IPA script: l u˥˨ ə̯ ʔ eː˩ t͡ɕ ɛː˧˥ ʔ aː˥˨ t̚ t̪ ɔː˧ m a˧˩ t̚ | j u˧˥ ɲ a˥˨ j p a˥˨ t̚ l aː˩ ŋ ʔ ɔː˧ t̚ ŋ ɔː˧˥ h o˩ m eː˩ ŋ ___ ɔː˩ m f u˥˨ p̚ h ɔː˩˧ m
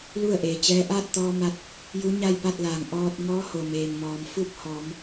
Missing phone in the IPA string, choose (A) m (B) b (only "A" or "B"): A